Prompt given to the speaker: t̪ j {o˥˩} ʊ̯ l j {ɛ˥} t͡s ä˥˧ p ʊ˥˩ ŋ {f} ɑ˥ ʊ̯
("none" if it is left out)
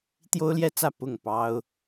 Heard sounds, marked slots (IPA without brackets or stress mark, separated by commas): o˥, ɛ˥, p